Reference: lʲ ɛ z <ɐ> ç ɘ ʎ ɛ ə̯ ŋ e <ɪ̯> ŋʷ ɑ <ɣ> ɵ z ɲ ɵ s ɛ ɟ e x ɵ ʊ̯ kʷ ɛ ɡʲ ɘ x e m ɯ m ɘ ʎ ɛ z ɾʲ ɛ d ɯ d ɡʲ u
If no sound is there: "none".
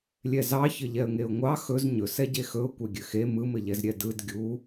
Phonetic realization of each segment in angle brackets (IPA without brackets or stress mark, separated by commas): ɑ, ʊ̯, x